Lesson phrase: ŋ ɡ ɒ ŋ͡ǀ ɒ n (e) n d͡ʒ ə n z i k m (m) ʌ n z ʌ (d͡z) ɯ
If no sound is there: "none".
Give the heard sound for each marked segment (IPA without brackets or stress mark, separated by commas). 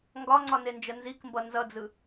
e, b, d͡z